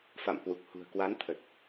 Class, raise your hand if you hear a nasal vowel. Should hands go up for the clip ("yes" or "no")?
no